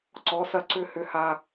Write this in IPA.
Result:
ǀ ɔ˩˧˩ s ɐ˧ ǀ ʏ˧ h ʏ˧ h a˧

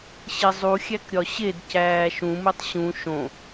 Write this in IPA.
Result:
ɕ e zˤ u xʲ æ k ɾʲ ɒ ɕ e d c æː ʃ ũ m u tˤ ɕ ũ ʃ õ

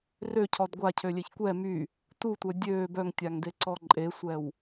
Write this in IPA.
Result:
r ø cʰ ɔ d ɡʷ a cʰ ø lʲ e ç kʷ ɛ m y | t u tʷ œ dʲ øː b œ ŋ tʲ a ŋ d e ǀ ɔ ǃʼ e sʷ ɛ w

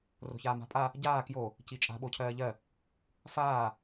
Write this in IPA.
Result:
r o̤ ç aː m a̤ pʼ a | ɟ aː k j o | c i t͡ʃʼ a̤ ɓ o cʰ ɜː ʎ ɜ | f aː

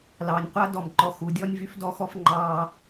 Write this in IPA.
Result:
l ɑː˨ nʲ qʷ a˦ d ɔ˦˨ m ǃ ɔ˦ x u˨ dʲ ɔ˦ nʲ v y˦ f d ɔ˦ x ɔ˦ f ŋ͡ǃ ɑː˦

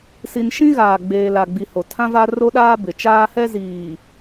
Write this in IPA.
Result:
s i˨ n ʃ ĩ˦ ɣ aː˨ ɡ͡b eː˨ l a˨ ɡ͡b i˨ h o˨ tʰ ã˦ v a˦ r o˦ ɗ aː˦ b ɪ˨ t͡ʃ aː˦ h ɛ˦ z iː˨

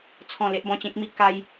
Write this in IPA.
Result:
t͡sʰ ɔ̃˥˧ l e˦ ʔ b ɔ̃˧ t͡ɕ ẽ˦ k̚ m i˦ k a˦ j

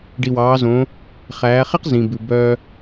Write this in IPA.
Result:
ɖ i˩ w ɑː˩˧ z õː˩˧ | χ æː˩˧ χ e˥ q z ĩ˩ b ʉ˩ b œː˧

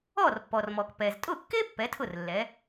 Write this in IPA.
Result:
ɔ˥˩ r pː ɔ˩ r m ɔ˩ k p ɛ˩ z tʼ ʊ˥˩ kː e˥ pː ɛ˩˥ tʰ ʊ˥˩ r lː ɛ˩˥

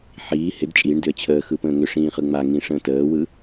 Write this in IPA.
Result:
ħ iː h ɪ d t͡ʃʼ i ɳ d ʏ ə̯ t͡ɕʰ əː x ɯ p ə̃ː ŋ ʏ ʂ ĩː χ ɯ ŋ͡m a ŋ ĩ ʂ ə̃ː t əː w ɯ

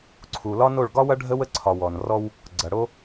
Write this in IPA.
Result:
ǀʰ u˨ l ɒ˦ n o˦˨ ɭ ɡ ɒ˦ w ɐ˦ ɖʱ ə˦ w ə˦ ǀʰ ɒ˨ w ɔ˨ n r ɔ˦ w | ɡ͡ǀ ɐ˨ ɽ o˦

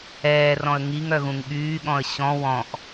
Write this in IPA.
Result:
ɛː r ɔ̃ ə̯ ŋ i ŋ œ ɣ ũ ŋ ɠ yː ɠ ɔ̃ ə̯ ɕ ɔ̃ w ɔ̃ ʔ

